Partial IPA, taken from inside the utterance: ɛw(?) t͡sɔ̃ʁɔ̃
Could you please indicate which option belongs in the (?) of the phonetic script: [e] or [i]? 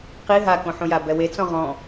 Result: e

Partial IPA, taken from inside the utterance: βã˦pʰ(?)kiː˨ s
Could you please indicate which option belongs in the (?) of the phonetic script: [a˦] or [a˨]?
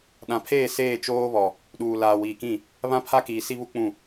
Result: a˦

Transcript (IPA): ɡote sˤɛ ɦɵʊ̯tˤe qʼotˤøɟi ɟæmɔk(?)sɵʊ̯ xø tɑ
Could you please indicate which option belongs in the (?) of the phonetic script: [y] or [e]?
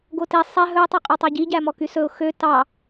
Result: y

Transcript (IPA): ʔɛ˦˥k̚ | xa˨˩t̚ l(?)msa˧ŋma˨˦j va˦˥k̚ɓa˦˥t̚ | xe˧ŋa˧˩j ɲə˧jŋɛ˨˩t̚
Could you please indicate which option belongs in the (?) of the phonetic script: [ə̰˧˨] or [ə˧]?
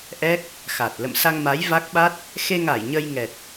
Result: ə̰˧˨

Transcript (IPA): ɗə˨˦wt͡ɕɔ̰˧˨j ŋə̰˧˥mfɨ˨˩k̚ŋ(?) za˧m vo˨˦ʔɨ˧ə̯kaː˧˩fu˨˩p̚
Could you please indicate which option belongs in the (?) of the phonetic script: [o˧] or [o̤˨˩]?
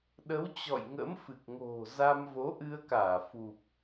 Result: o̤˨˩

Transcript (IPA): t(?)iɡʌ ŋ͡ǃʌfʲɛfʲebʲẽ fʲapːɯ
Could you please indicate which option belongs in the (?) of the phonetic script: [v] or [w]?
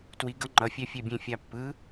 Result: w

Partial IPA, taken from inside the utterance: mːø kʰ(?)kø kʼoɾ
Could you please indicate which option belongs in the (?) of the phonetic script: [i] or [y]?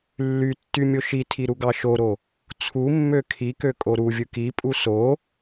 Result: i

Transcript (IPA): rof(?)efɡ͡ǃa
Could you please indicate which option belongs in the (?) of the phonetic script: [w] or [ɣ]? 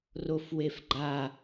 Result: w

